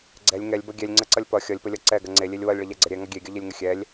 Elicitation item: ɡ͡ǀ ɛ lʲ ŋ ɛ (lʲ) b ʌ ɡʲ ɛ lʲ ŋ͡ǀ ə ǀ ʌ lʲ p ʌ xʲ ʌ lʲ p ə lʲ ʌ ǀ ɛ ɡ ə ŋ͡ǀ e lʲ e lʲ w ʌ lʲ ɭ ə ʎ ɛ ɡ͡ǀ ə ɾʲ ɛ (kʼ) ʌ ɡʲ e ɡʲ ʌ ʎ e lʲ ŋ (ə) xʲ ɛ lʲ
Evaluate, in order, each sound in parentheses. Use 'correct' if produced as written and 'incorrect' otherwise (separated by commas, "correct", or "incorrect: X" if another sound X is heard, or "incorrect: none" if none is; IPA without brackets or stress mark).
correct, incorrect: ŋ, correct